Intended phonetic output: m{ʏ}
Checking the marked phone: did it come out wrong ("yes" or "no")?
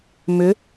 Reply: no